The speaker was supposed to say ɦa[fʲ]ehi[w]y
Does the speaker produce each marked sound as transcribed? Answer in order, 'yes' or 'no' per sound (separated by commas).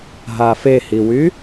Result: no, yes